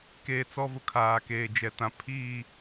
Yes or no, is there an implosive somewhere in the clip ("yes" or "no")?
no